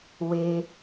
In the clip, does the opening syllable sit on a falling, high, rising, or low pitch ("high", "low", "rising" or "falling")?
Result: high